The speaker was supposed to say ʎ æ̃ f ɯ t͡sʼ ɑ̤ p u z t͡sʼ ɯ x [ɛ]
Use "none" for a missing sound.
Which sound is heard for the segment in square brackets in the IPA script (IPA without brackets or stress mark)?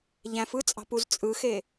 e